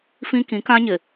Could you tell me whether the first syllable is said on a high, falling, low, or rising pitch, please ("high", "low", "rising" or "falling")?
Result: high